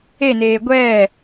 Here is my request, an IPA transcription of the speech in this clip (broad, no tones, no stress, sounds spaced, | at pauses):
e n eː ɡʷ ɛː